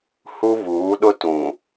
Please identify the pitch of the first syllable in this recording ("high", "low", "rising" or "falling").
high